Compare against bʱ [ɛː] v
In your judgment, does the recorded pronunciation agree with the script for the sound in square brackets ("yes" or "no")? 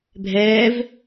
yes